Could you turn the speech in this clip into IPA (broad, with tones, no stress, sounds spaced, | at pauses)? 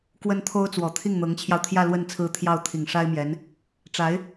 k w ə˥ n t̪ʰ o˥ ʊ̯ t͡s w ɔ˨˩ t̪ʰ i˥˩ ŋ n̪ ɤ˧˥ ŋ t͡ɕʰ j ɑ˧ ʊ̯ t̪ʰ j ä˥˧ l w ə˥˩ n t͡sʰ ɹ̩˥ t̪ʰ j ɑ˥˩ ʊ̯ t̪ʰ i˨˩ ŋ ʂ a˥ ɪ̯ m j ɛ˧˥ n | ʈ͡ʂ a˧˥ ɪ̯